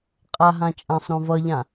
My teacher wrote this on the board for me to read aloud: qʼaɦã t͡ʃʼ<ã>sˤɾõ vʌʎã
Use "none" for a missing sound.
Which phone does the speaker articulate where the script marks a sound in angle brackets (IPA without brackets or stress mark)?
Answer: ã